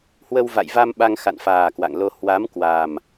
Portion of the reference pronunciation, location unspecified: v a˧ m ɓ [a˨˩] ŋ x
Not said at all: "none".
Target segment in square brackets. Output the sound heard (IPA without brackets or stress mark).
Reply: a˧